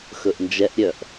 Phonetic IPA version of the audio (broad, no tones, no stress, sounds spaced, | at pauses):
x ɵ ʔ n d͡ʒ ɛ ʔ ɾʲ œ ʔ